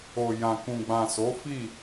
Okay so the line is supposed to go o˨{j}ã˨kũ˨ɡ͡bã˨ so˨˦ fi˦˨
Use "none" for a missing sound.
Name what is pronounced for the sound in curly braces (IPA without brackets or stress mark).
j